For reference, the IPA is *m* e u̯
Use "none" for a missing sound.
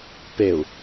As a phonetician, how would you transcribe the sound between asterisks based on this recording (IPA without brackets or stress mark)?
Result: p